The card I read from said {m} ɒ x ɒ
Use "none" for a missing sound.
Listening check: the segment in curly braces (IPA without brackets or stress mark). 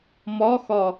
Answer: m